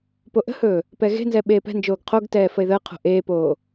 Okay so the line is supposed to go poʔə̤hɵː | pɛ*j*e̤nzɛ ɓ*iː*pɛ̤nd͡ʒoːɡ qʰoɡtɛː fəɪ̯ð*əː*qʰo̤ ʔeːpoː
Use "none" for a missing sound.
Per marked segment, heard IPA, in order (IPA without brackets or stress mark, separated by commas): ɣ, eː, əː